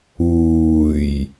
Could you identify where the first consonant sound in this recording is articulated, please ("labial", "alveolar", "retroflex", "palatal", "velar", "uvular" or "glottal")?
palatal